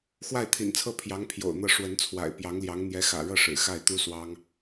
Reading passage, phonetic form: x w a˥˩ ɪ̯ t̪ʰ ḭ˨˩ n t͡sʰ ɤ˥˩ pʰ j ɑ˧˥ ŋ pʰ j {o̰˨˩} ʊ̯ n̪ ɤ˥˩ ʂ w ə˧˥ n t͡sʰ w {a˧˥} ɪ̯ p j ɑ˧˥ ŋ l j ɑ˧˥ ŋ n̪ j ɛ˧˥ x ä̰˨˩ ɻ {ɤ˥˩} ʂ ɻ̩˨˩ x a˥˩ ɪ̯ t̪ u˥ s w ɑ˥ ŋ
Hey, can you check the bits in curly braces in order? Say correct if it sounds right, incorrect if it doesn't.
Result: correct, incorrect: a̰˨˩, correct

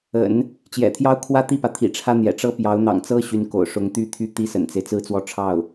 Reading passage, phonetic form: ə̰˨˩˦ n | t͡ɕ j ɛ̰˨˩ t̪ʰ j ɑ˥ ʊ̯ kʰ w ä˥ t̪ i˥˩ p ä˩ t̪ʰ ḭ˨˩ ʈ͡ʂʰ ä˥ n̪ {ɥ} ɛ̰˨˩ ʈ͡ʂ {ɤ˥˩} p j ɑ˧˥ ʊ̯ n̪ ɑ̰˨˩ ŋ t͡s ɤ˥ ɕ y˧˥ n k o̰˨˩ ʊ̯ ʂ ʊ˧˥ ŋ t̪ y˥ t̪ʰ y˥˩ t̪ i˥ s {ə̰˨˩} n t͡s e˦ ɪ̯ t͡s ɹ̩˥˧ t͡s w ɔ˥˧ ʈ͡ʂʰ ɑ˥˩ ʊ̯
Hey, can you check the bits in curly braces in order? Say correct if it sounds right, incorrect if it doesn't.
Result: incorrect: j, incorrect: ɤ˥, correct

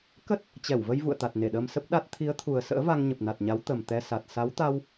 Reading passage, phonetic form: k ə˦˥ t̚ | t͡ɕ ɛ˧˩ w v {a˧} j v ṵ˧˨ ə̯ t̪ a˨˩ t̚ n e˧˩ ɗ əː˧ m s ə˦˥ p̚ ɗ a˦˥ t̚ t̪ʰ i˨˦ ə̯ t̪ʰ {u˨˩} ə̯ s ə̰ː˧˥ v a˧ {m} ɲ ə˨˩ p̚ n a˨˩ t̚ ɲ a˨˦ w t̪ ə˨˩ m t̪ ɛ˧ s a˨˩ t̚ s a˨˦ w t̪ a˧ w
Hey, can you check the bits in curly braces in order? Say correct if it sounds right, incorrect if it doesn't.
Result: incorrect: ə˧, correct, incorrect: ŋ

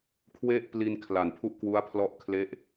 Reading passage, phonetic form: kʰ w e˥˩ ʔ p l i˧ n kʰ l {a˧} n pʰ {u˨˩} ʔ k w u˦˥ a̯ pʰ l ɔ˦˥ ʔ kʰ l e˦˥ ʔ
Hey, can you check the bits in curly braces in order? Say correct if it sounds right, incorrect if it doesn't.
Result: incorrect: a˨˩, incorrect: u˥˩

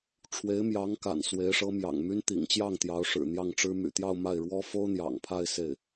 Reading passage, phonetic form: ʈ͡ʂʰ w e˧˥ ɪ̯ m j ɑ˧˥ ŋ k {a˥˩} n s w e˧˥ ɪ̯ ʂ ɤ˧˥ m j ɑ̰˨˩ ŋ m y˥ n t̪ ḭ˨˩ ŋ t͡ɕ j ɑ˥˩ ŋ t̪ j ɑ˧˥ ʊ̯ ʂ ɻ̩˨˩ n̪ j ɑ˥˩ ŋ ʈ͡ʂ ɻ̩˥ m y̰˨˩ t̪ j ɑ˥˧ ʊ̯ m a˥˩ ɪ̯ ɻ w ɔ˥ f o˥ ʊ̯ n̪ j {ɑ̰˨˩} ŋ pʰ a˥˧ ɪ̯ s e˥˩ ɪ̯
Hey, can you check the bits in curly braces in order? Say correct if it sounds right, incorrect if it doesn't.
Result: incorrect: a̰˨˩, correct

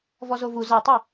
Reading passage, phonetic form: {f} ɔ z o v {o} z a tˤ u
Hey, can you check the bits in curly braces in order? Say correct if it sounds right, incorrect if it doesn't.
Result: incorrect: v, incorrect: u

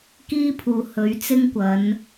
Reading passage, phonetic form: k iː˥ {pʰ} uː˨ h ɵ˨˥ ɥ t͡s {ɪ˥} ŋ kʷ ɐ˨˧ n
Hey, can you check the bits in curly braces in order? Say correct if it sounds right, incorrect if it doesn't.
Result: correct, correct

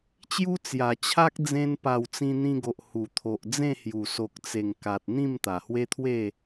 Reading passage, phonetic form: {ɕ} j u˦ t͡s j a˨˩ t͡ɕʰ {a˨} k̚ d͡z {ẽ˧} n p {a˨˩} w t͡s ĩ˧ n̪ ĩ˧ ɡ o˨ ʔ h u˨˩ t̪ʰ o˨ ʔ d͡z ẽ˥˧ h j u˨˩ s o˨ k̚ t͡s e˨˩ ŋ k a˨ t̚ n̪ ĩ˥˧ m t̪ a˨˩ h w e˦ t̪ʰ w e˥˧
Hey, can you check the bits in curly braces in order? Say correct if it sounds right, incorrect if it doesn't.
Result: incorrect: t͡ɕ, incorrect: a˦, correct, correct

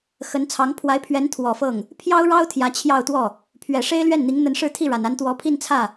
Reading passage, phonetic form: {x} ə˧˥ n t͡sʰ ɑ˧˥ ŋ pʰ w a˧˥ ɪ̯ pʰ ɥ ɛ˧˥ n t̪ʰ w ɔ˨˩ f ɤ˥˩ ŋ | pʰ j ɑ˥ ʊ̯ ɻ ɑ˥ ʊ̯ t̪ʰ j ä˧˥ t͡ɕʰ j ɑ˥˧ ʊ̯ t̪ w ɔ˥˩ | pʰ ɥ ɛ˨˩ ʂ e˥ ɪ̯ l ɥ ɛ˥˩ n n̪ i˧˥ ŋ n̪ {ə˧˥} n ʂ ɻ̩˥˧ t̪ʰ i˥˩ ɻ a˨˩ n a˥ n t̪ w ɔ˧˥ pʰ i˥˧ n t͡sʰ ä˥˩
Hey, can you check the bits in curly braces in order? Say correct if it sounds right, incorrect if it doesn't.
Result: correct, correct

